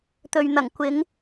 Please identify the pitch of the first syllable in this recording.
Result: low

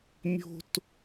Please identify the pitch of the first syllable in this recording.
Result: high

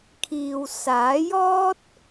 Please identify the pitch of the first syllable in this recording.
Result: low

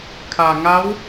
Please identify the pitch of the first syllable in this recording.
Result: low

